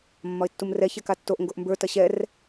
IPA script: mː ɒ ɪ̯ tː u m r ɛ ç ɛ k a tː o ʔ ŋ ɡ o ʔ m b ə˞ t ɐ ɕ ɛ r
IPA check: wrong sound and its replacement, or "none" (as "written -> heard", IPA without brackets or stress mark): none